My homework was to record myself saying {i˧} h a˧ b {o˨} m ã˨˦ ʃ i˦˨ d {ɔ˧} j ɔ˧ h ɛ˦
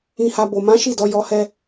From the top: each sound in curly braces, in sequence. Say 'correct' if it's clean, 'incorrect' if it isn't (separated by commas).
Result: incorrect, correct, correct